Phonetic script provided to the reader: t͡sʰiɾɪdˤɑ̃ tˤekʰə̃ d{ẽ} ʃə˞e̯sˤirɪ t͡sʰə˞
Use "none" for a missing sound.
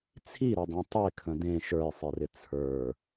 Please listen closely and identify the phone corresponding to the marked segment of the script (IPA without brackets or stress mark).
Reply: ẽ